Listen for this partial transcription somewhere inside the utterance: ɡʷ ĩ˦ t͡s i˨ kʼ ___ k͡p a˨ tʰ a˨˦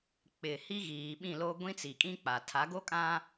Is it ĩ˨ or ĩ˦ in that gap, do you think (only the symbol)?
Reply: ĩ˦